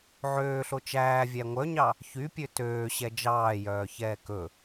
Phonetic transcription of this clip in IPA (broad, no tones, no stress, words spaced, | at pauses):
ʕøːɬo t͡ʃæːvʲæ ŋʷœɲɑ | çypʲø tøːɕɛ d͡ʒɑːjœːçɛː kɵ